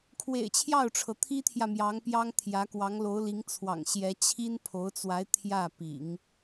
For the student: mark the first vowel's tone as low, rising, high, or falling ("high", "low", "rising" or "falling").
low